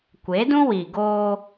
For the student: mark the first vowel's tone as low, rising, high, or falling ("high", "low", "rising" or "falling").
rising